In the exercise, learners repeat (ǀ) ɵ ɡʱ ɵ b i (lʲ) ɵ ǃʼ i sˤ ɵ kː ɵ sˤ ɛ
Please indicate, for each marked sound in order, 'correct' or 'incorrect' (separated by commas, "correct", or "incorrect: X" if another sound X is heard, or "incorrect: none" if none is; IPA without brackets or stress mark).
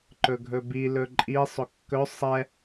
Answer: incorrect: ǃ, incorrect: l